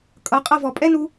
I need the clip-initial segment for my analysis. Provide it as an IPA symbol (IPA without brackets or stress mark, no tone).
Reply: kʼ